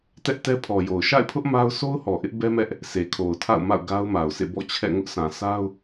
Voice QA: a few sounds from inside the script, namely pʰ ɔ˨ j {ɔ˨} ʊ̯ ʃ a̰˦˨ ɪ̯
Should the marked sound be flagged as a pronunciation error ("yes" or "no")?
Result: yes